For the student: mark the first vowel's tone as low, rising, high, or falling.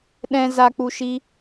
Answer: low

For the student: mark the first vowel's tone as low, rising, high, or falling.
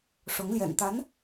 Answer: rising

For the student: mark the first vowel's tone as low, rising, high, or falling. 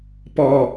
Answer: low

